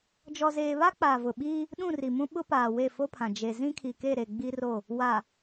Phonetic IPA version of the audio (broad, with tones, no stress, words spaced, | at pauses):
d͡ʒɔ˨zeː˨βa˦ k͡paː˨vʊ˨ɓiː˦ | ɗũ˦˨ri˨mũ˦ ɓʊ˦paː˨ we˦˨fo˦pʰã˨ d͡ʒe˨zĩ˦ kʰi˨ke˦˨ɾe˨ ɡ͡bi˦ro˦˨ | wa˨